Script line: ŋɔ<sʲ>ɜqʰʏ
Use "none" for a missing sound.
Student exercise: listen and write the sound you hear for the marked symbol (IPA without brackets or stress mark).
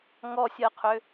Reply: sʲ